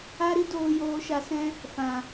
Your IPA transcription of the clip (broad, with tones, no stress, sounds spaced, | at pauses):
a˦ ɾ i˦ d oː˧ j oː˧ ʃ a˧ s ɛ̃˦ | f ã˨